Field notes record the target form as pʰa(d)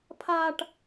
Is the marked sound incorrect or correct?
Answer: incorrect